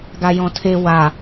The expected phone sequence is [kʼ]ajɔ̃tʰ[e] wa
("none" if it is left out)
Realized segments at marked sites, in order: ɡ, e

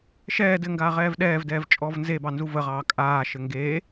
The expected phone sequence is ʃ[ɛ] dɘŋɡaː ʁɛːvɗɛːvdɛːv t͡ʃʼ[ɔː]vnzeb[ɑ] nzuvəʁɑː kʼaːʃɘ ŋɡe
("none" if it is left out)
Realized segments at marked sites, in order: ɛː, ɔː, ɑ

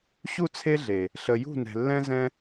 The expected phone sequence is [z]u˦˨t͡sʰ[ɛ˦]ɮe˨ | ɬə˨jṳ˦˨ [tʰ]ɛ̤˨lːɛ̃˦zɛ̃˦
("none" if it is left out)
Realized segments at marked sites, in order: ɕ, e˦, n

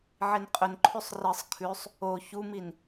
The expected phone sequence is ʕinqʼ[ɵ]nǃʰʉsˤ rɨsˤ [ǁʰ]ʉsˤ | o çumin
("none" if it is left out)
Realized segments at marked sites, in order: ɵ, kʰ

